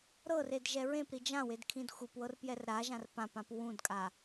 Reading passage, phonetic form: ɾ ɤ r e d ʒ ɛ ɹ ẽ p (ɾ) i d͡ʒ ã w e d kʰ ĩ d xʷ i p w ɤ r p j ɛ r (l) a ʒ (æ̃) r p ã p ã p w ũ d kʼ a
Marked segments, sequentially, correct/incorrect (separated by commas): correct, incorrect, incorrect